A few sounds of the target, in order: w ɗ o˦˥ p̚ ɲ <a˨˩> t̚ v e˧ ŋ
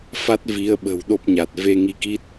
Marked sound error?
no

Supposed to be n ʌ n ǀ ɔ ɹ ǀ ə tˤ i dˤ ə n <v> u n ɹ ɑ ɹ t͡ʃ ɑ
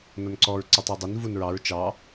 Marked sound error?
no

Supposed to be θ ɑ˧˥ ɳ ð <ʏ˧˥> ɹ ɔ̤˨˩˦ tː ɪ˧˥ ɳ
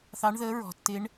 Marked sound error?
yes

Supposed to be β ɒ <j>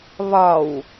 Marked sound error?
yes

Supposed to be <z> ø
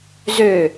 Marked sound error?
no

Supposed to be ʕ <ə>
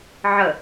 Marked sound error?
no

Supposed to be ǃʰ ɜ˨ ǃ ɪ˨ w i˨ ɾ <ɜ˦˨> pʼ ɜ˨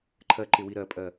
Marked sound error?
yes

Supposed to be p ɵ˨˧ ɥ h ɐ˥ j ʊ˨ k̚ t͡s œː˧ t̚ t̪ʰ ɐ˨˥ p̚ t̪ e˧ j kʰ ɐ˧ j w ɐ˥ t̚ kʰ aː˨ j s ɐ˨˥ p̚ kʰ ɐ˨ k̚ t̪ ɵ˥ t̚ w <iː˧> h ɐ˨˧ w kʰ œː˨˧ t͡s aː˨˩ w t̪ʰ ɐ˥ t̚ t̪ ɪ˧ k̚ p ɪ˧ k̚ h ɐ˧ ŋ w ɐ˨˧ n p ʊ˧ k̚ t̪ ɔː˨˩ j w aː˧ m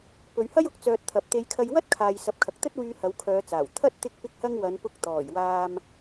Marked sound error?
yes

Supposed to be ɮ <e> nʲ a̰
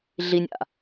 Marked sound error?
yes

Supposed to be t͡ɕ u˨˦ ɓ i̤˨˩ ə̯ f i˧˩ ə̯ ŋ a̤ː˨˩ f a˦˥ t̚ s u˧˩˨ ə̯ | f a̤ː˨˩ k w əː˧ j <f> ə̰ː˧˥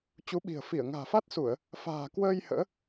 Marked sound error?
yes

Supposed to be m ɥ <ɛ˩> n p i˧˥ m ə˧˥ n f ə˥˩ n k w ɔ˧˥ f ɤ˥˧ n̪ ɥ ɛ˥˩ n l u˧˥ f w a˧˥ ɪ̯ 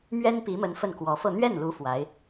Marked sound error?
yes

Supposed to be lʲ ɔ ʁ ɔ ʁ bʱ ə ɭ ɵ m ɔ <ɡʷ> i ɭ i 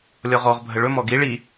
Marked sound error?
yes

